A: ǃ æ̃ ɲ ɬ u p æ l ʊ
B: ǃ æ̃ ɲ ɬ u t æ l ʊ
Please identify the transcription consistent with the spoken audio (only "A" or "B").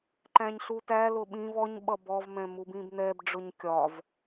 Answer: B